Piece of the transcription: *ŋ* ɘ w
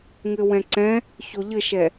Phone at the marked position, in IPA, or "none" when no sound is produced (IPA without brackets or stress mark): ŋ